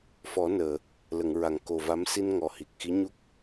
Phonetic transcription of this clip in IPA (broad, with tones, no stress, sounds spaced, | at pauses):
f ɔ˨˩˦ n əː˨˩˨ | l ə˨˩˨ ŋ ɹ a˨˩ ŋ k o˨˩ v a˧˥ m s i˧ n ŋ ɔ˨˩ h i˨˩ k̚ x i˧˥ ɲ u˦˥ k̚